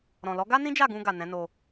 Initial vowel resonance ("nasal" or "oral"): nasal